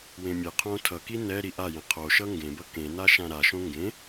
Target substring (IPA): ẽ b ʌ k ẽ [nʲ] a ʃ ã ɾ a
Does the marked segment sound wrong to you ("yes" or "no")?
yes